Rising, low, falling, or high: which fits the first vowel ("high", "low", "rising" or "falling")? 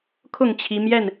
falling